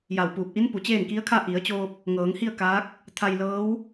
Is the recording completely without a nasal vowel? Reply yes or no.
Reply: yes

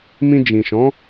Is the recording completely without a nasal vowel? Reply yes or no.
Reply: no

